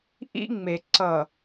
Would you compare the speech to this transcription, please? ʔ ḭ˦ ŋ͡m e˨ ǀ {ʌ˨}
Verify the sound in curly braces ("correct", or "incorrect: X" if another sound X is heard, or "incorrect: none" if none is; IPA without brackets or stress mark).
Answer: correct